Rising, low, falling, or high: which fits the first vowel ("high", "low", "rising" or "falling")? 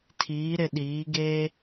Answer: rising